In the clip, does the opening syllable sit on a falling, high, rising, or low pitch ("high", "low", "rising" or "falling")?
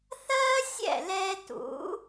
high